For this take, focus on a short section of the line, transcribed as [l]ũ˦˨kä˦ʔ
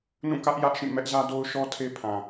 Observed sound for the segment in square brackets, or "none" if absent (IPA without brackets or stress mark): n